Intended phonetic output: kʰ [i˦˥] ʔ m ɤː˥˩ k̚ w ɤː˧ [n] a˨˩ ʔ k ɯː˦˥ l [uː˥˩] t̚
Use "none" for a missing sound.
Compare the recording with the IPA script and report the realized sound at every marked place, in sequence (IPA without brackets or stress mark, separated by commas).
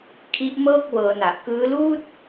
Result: i˦˥, n, uː˥˩